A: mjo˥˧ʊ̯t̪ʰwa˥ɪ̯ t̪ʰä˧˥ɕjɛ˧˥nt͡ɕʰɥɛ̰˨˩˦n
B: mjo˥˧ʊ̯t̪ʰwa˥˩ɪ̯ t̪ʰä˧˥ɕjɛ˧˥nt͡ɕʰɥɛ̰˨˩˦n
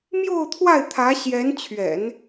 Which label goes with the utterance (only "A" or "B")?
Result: B